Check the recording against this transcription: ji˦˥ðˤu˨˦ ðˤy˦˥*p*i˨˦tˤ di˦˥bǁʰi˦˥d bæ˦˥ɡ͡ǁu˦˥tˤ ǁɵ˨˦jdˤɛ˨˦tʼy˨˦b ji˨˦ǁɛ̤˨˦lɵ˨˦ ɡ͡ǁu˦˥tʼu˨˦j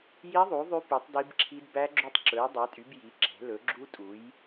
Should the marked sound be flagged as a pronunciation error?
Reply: no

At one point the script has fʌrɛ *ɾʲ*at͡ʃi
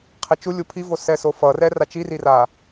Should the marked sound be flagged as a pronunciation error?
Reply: yes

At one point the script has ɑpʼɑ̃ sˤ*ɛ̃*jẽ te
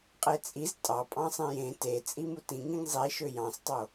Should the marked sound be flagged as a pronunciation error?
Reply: yes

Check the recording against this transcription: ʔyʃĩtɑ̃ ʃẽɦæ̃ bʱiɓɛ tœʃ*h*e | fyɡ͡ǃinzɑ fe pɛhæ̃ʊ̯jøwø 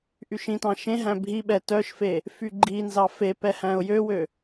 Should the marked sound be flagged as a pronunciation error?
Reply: yes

